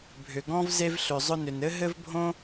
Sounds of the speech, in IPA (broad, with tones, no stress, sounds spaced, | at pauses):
bʱ ʏ˩ ɡ ɔ̃˥ v z e˥ v ɬ ʏ˩ zˤ ʊ˥ n ʏ˩ n ɘ˥ ɦ ɘ˥ v bʱ õ˥